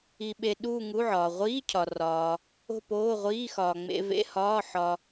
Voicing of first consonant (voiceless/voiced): voiced